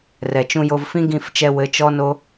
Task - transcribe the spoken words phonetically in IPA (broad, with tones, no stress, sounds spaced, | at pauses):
r ɛ˨ t͡ʃ ũ˧ j o˧ v f ĩ˦ ɡ ĩ˦˨ f t͡ʃ ɛ˧ w ɘ˨˦ t͡ʃ ɔ˦ n o˦